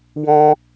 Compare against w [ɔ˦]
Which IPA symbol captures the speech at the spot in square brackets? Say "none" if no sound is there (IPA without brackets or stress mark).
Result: ɔ̃˦